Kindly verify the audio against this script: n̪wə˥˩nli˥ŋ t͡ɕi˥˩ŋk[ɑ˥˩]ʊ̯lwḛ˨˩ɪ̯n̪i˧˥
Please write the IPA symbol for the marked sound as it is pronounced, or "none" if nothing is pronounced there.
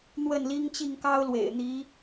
ɑ˥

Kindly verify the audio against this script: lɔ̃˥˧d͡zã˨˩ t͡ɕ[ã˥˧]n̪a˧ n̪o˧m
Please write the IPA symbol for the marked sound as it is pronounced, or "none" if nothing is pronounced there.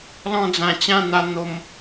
ã˥˧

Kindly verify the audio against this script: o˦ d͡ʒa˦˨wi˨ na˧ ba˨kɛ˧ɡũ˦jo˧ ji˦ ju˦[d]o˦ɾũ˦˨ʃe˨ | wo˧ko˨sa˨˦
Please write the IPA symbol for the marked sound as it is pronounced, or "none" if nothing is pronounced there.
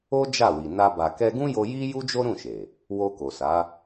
d͡ʒ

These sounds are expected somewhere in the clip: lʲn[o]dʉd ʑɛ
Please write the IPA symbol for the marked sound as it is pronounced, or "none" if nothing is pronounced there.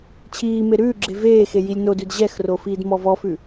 o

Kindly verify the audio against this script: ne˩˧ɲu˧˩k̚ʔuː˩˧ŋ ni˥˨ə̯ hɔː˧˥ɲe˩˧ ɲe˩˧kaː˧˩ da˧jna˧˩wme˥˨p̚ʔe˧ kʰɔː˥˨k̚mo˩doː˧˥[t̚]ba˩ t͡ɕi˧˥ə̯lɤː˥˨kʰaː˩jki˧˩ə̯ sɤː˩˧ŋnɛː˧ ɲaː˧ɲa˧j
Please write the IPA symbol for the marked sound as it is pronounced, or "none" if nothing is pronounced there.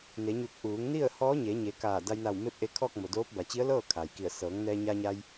p̚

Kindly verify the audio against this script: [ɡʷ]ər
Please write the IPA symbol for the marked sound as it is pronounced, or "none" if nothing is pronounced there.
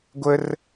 ɡʷ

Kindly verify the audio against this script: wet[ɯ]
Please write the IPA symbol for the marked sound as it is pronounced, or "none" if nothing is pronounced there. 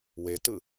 ɯ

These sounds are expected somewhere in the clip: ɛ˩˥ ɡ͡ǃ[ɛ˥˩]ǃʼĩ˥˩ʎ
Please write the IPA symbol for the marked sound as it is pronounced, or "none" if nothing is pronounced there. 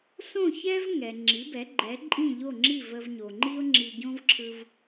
ɛ˩˥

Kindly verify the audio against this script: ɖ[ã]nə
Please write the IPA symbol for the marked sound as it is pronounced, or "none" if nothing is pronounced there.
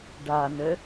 a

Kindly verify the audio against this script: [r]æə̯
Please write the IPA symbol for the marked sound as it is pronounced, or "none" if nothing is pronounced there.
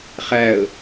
χ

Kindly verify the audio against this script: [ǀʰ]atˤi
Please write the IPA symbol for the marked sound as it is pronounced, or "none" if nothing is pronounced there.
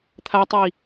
t̪ʰ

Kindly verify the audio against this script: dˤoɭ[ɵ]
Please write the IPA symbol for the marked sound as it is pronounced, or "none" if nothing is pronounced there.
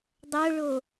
o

